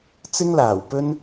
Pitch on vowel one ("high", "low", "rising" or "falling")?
high